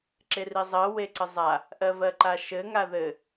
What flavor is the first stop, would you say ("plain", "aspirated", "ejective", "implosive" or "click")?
click